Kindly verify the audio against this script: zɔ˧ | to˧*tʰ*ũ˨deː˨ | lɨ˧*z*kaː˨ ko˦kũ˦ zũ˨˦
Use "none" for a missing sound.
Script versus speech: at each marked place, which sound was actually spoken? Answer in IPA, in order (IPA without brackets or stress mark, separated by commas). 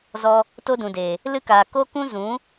d, none